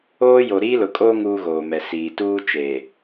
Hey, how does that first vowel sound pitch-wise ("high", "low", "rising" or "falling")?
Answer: high